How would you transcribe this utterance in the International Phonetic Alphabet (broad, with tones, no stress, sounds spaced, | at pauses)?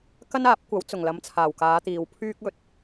k ɐ˥ n aː˨˥ p̚ kʷ ɐ˨˥ w t͡s ʊ˨˩ ŋ l ɐ˨˥ m t͡sʰ aː˨˩ w k aː˨˧ t̪ iː˨ w pʰ yː˥ k̚ ɵ˧ t̚